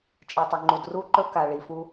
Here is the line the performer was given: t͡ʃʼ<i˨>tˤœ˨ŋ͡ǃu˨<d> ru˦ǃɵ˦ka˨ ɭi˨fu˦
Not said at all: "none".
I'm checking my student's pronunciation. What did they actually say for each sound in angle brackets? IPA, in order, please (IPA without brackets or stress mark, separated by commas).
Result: i˨, d